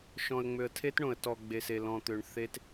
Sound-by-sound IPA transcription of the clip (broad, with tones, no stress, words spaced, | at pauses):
ʃɔ̃˨ə̯ ŋ͡mø˨ə̯tʰe˦tɳõ˨ə̯ tɔ˨ ɡ͡be˨se˨lɔ̃˨t̪ø˨ɳ θe˦t